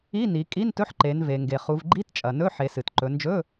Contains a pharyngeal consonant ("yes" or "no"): yes